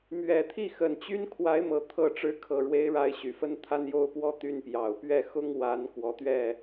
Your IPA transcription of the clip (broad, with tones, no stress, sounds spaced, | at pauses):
m ɥ ɛ˨˩ t̪ʰ i˥˩ x ə˨˩ n t͡ɕ y˥ n kʰ w a˧˥ ɪ̯ m ɤ˨˩ t̪ʰ ɤ˥˩ ʈ͡ʂ ɻ̩˧˥ kʰ ɤ˨˩ ɻ w e˧˥ ɪ̯ ɻ a˧˥ ɪ̯ ɕ y˨˩ f ə˥ n t̪ʰ a˥ n j o˥ ʊ̯ p w ɔ˥˧ t̪ y˥˩ n p j ɑ˨˩ ʊ̯ p ɥ ɛ˥˩ x ʊ˥ ŋ w a˧˥ n k w ɔ˧˥ t̪ ɥ ɛ˥˩